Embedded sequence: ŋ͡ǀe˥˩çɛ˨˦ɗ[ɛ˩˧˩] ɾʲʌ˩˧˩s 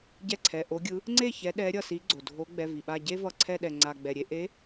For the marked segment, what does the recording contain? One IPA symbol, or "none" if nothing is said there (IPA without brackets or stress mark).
ɛ˨˦